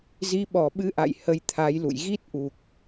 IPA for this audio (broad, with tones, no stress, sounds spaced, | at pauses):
z i˨˦ ɓ ɔ˧˩ ɓ ɨ˧ ʔ a̰˧˨ j h ə˧ j t̪ʰ a˨˦ j l ṵ˧˨ j ɣ i˦˥ t̚ ʔ u˨˩ k̚